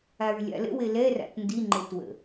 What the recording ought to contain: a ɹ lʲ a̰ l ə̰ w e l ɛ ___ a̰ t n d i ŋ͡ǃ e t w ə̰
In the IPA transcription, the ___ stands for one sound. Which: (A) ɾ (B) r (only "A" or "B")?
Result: B